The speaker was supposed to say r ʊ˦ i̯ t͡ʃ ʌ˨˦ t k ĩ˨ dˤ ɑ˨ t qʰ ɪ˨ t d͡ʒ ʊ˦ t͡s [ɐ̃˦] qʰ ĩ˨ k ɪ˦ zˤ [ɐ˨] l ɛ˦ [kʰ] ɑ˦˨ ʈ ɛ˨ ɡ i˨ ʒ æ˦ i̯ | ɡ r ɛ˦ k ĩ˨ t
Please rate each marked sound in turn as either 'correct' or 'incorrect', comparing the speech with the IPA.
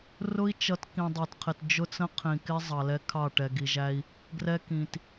incorrect, incorrect, correct

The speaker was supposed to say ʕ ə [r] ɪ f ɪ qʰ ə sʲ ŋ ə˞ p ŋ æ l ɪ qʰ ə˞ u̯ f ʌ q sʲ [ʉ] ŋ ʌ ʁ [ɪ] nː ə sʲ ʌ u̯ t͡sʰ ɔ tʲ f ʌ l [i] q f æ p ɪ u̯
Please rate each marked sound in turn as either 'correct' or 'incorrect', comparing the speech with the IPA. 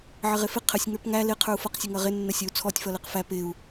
incorrect, incorrect, correct, incorrect

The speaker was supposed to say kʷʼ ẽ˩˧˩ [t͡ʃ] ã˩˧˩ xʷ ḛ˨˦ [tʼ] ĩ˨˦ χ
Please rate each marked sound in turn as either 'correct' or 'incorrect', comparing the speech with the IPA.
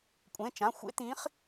correct, incorrect

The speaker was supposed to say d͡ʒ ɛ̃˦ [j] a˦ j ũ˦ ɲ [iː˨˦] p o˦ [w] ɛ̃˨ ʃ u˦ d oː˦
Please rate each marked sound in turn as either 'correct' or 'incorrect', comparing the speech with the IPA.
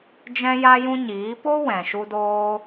correct, correct, correct

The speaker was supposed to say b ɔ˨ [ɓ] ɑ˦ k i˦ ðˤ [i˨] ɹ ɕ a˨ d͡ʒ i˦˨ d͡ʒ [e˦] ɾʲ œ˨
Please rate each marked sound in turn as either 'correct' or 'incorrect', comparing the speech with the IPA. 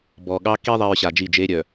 incorrect, correct, correct

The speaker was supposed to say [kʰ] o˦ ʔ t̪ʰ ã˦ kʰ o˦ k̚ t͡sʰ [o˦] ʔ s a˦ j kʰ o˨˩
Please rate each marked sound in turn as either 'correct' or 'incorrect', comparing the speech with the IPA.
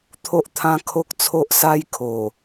incorrect, correct

